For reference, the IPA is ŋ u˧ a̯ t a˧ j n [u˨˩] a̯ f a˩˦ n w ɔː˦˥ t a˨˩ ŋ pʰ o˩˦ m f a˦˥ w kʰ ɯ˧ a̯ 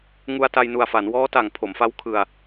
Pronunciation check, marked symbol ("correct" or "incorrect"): correct